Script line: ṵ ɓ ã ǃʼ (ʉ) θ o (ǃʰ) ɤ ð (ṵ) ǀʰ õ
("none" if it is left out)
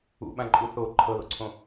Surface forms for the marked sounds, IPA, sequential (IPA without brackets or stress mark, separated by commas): u, ǃʰ, o̰